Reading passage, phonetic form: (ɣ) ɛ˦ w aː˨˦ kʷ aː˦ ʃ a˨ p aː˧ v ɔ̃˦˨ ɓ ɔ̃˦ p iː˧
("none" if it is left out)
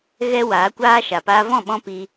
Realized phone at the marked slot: ɣ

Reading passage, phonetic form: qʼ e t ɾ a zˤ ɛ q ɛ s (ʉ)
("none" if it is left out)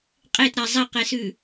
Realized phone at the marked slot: ʉ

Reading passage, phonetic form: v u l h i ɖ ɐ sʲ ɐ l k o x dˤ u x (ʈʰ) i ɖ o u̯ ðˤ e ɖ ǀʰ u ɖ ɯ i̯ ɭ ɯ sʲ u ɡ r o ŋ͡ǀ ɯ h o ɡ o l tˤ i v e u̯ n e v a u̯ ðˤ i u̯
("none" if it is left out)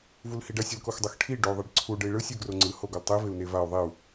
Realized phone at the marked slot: ʈʰ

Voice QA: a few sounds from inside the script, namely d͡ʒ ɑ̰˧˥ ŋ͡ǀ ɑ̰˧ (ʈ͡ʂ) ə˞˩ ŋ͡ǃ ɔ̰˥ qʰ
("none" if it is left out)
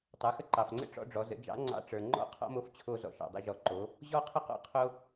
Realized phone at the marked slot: ʈ͡ʂ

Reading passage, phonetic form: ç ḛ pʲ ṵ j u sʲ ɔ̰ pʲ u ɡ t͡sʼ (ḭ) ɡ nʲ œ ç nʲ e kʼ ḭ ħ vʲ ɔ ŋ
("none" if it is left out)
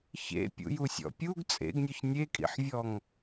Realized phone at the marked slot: ḛ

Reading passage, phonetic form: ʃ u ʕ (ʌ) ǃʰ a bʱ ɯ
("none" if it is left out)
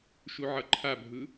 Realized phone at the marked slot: ʌ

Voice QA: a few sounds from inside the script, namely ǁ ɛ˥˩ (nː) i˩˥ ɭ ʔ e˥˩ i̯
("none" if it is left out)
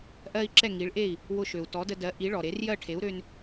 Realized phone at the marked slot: ŋ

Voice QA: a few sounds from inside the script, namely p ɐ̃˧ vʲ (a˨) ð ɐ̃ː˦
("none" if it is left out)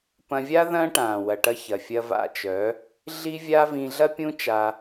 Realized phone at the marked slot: a˦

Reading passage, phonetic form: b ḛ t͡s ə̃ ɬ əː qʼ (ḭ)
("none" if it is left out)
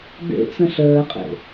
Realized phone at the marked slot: ḛ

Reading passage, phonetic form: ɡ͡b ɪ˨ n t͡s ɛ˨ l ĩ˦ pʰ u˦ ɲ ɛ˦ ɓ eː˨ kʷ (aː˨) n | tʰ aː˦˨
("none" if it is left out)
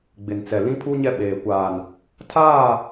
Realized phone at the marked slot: aː˨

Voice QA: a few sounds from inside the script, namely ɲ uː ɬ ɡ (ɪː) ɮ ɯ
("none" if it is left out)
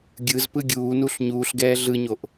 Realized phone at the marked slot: ɛː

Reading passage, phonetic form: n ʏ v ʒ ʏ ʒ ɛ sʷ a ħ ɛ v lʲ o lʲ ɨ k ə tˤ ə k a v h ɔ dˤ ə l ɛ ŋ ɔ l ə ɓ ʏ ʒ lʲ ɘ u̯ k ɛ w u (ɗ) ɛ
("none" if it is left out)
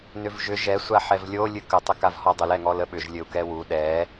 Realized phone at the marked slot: ɗ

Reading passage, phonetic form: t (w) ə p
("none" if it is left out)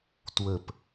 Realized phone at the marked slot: w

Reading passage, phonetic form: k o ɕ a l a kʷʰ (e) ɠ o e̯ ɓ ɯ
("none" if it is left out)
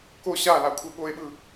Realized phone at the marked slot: e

